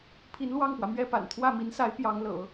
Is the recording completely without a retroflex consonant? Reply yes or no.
yes